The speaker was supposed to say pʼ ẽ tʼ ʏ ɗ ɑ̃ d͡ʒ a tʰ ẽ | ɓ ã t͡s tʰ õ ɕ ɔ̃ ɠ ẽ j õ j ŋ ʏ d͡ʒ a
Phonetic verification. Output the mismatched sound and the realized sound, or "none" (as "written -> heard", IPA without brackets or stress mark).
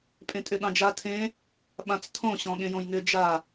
none